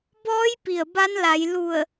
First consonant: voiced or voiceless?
voiced